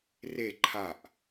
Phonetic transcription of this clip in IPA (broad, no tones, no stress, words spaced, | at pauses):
re ǃʰaʔ